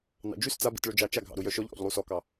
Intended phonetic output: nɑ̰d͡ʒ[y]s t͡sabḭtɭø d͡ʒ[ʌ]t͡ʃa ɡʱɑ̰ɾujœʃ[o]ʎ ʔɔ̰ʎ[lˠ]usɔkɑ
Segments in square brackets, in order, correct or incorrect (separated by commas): correct, incorrect, incorrect, correct